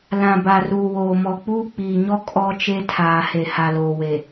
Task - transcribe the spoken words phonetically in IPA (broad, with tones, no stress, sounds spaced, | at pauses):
l ã˨ b a˨ r uː˨ w oː˨ m ɔ˨ k͡p uː˦ k͡p iː˨ ɲ ɔ˦ kʼ ɔ˦ t͡ʃ e˦ tʰ aː˨ h e˨ h a˨ l oː˨ w e˨